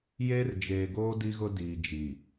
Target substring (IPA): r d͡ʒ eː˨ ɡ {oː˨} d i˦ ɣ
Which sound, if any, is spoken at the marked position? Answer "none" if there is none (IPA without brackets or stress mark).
oː˦